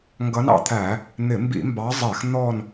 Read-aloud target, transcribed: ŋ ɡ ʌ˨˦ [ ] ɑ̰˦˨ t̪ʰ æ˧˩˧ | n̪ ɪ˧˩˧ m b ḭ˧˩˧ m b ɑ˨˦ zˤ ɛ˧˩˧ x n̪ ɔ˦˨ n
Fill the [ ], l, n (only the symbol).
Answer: n